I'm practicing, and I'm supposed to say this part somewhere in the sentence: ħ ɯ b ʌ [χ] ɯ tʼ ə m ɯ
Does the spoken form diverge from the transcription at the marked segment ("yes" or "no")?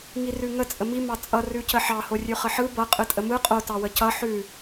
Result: yes